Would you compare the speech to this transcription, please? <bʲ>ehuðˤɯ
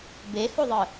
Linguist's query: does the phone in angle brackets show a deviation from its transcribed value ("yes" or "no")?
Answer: yes